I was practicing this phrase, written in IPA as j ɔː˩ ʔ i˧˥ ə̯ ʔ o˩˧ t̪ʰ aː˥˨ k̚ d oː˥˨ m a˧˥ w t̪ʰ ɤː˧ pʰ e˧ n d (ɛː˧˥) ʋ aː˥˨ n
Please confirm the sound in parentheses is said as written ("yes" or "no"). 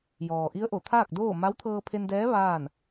yes